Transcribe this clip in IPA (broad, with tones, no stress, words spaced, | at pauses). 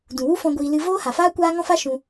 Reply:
dũ˨wu˦fɔ̃˧ ɡʷiː˧ lɨ˧ voː˦ha˨faː˦ kʷaː˦ŋɔ̃˦fa˦ ʃũ˧